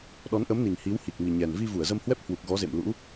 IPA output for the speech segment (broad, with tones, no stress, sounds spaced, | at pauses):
ɗ ɔ˨˦ n ʔ ə˨˦ m n i˨˩ ŋ h i˨˦ w h i˨˩ k̚ m i˨˩ ɲ ɛ˨˩ n v i˧ v u˧˩ ə̯ z ə˧ m h w ɛ˦˥ p̚ h w u˨˩ k̚ ɣ ɔ˨˦ z ḛ˧˨ m l ṵ˧˥